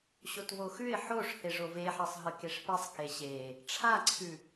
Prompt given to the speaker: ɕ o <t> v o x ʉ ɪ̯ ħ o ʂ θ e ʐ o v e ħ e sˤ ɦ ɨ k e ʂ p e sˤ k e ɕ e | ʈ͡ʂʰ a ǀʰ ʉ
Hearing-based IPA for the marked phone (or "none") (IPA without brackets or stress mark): t